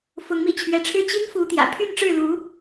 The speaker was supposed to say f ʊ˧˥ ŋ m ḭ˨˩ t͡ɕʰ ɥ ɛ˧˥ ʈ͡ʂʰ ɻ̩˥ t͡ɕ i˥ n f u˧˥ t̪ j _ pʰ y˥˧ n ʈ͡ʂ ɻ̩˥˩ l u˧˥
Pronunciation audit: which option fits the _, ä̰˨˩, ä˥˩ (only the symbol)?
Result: ä̰˨˩